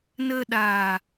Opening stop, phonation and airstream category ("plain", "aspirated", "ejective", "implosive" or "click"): implosive